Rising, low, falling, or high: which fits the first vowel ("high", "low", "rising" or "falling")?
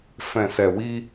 low